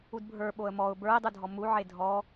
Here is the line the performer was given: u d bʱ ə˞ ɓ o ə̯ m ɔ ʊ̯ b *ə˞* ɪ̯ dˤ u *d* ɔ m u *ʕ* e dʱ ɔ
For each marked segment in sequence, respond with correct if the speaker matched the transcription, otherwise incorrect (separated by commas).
correct, incorrect, correct